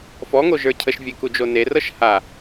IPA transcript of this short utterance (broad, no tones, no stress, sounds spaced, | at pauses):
f ɔ ŋ o ʒ ə˞ cʰ ə ʃ vʲ e k u d͡ʒ o n e r ɤ ʃ h a